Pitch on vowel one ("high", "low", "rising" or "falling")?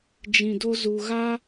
low